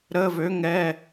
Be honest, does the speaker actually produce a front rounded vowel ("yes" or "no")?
yes